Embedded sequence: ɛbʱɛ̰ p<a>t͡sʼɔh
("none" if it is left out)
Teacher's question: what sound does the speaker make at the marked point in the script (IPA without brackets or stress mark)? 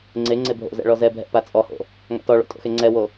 a